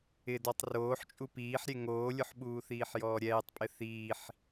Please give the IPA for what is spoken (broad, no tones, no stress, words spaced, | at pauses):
ɪdɔtˤ roːħt͡ʃʼu piːħɾʲe ŋoːlʲʊħɓuːθiːħ jɔːɾʲɛːtˤpʼɪ θiːħ